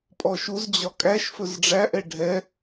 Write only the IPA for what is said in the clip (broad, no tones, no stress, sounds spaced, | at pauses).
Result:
pʼ ɔ ʃ u z d͡ʑ ɒ kʼ æ ʃ f ɵ z ɖ͡ʐ æ ʔ ɛ ɖʱ ɛ